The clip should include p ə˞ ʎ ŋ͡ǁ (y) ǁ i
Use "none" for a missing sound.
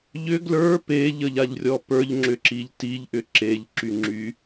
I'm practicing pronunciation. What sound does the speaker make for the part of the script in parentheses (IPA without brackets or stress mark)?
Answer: ʏ